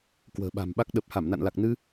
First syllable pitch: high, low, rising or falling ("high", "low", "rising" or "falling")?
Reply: low